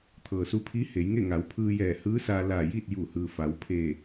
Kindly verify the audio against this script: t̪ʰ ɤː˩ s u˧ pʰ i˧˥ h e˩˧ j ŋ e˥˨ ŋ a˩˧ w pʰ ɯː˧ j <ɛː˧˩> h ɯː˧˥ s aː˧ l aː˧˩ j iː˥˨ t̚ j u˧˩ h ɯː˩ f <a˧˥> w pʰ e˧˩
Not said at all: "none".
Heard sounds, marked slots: ɛː˧˩, a˩˧

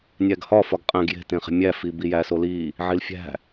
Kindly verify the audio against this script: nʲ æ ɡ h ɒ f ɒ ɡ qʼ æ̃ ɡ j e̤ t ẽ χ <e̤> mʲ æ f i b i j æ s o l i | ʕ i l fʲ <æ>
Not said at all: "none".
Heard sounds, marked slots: e̤, æ̤

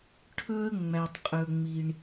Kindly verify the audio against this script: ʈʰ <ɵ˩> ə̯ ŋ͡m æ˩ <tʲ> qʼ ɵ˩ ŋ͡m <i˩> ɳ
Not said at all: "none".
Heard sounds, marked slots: ɵ˧, tˤ, i˩

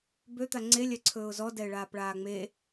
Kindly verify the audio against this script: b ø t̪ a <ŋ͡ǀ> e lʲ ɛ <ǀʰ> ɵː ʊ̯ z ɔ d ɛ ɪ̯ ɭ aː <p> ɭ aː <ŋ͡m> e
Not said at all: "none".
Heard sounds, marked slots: ŋ͡ǀ, ǀʰ, p, ŋ͡m

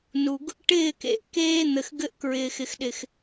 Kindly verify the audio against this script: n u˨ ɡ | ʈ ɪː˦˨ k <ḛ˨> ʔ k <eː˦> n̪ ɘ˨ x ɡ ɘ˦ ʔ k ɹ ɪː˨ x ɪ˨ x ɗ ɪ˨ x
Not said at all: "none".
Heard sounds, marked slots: ḛ˨, eː˦

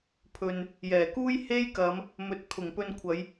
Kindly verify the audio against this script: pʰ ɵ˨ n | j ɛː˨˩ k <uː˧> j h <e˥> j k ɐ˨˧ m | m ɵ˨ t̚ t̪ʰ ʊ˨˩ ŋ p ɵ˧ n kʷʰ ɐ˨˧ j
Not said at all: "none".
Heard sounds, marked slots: uː˥, e˥

